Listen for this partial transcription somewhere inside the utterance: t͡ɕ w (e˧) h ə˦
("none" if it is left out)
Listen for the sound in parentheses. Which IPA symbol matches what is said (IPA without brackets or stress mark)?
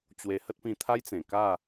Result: e˧